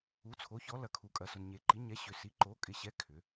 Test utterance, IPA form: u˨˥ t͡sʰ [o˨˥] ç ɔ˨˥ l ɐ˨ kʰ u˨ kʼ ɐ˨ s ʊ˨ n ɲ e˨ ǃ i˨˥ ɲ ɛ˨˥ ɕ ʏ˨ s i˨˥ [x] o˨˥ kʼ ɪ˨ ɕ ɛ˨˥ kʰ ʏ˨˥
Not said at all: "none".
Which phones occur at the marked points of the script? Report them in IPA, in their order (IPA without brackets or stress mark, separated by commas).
o˨˥, ǃ